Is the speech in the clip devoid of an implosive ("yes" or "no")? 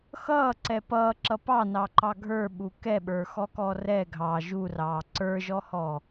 no